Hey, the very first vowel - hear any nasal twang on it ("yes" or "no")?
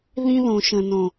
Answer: yes